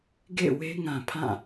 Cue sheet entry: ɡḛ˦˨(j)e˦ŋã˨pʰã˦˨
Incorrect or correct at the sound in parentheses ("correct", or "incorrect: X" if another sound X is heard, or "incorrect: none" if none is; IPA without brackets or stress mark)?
incorrect: w